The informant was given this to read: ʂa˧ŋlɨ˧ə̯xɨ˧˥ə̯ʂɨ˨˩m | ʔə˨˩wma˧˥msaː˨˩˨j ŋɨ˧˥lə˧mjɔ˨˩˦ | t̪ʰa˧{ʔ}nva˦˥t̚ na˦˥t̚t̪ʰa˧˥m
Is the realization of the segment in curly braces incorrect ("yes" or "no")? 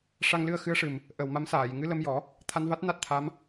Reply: yes